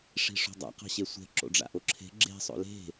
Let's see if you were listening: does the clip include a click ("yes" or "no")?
yes